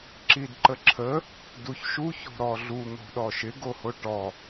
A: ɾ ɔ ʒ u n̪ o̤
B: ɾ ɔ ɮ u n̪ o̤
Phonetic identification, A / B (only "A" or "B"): B